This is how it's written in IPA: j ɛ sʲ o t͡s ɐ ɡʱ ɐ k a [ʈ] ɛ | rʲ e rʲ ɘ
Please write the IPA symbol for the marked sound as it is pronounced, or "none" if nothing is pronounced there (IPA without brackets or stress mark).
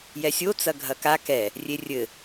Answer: k